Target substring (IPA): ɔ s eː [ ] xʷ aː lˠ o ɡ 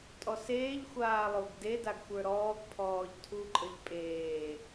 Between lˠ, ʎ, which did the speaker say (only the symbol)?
ʎ